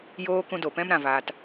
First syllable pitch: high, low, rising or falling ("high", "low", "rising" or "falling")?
high